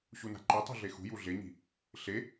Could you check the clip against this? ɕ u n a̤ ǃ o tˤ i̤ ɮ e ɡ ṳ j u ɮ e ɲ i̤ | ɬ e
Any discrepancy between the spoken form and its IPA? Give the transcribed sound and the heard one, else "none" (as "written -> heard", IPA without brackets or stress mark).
ɡ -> x